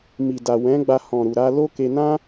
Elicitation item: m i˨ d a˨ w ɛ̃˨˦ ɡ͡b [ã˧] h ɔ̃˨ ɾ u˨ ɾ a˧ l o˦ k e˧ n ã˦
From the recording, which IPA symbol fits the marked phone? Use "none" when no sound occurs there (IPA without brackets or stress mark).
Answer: a˧